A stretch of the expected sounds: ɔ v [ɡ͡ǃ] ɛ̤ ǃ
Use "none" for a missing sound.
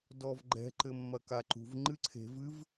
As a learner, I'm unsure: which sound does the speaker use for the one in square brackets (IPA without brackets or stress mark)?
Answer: ɡ͡ǃ